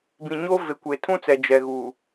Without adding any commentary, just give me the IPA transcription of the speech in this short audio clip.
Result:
b ĩ˨ ɲ o˦ v e˨ kʷ e˨ tʰ ũ˦ t͡s ɛ˨ d͡ʒ ɛ˨ ɣ u˨

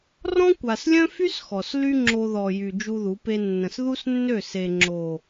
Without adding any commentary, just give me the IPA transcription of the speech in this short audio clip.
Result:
r ɔ̃˦ kʷ a˨ s lʲ œ̃˦ f y˦ s x ɔ˨ s l y˦ ŋ͡ǁ o˧ ð ɔ˨ j y˨ d͡ʒ u˦ ð u˨˦ p e˦ nː ə̃˨ s ð u˦ s nː ø˦˨ s e˨ ŋ͡ǁ o˨

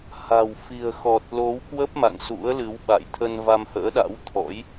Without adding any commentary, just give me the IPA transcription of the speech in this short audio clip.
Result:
h a̤˨˩ w f i̤˨˩ ə̯ x ɔ˨˩ t̚ l o˨˦ w k w ə˦˥ p̚ m a̰˧˨ ŋ s ṵ˧˥ ə̯ l ɨ˨˦ w ɓ a̰˧˨ j t̪ʰ ə˧ n v a˧ m h ə̰ː˧˥ ɗ a̰˧˥ w t̪ʰ ɔ̰˧˥ j

